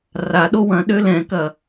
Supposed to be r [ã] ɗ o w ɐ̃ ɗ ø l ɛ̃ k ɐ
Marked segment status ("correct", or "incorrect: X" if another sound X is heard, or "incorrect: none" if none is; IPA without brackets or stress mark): incorrect: a